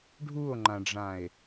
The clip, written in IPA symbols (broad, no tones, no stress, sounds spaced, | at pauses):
ɖʱ u o̯ ŋ͡ǃ ã ɖ͡ʐ ã e̯